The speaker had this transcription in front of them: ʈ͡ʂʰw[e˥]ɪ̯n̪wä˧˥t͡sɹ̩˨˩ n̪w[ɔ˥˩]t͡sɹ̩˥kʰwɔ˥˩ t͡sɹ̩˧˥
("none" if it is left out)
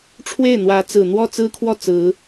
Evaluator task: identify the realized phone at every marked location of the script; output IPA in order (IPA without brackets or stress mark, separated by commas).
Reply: e˥˩, ɔ˥˩